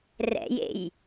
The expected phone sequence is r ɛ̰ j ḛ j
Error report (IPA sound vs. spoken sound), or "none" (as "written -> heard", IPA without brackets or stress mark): none